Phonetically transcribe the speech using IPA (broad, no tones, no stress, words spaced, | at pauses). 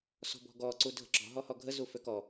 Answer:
sɔ̤bɔ̤ɡɔ ǀudʱə̤ǁɔ̤ ɦɔhɔɡʱə zuføkɔ